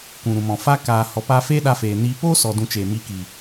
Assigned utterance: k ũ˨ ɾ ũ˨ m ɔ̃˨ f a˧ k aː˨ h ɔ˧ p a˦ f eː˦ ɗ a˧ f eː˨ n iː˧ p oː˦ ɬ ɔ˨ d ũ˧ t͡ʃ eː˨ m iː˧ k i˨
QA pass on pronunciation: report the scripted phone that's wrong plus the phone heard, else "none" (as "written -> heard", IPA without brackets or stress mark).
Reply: ɬ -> s